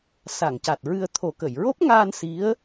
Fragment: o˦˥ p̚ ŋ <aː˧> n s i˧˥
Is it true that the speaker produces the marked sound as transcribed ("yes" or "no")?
yes